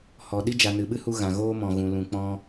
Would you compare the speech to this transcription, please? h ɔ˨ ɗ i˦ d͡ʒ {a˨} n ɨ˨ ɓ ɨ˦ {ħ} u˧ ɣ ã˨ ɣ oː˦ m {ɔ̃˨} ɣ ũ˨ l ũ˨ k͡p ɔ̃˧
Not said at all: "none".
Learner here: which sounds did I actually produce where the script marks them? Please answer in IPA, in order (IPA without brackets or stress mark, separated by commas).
a˨, h, ɔ̃˨